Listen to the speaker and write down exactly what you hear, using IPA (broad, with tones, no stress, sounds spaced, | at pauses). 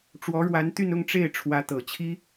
ʈ͡ʂ w ɔ˧˥ ɻ w a˧˥ n t̪ y˥˧ n ʊ˥˧ ŋ ʈ͡ʂ e˥˩ ɪ̯ ʈ͡ʂʰ w ä˧˥ t̪ ɤ˨˩ t͡ɕʰ i˥